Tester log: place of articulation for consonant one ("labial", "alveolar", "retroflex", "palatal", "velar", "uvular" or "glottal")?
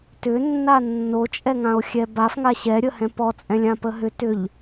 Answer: alveolar